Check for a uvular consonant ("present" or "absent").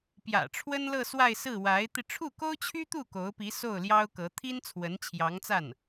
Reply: absent